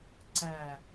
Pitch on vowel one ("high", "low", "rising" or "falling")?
low